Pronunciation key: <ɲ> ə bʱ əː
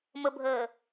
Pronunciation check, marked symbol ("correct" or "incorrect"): incorrect